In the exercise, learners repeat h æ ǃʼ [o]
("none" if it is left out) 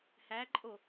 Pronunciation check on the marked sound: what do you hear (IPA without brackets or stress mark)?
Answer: o